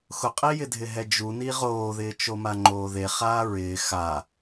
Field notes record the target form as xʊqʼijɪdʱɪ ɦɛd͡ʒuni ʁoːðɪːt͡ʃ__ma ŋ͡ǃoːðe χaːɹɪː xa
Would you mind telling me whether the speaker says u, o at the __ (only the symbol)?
o